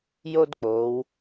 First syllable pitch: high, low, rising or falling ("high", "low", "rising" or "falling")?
high